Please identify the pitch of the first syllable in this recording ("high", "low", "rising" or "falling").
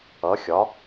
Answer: rising